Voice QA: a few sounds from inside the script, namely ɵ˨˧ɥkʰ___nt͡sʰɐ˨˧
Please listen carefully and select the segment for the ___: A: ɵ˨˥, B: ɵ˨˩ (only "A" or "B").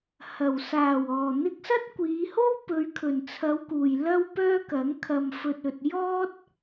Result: B